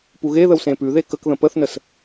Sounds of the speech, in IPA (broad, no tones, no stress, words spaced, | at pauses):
puɣeðəw sẽpʉðe kəkðə̃ pəθnəs